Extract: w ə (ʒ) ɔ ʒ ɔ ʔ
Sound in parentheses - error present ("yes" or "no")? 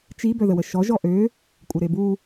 yes